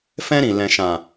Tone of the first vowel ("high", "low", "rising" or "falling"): high